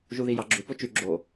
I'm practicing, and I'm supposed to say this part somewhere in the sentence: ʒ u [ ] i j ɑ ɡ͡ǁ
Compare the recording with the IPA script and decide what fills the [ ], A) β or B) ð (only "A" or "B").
B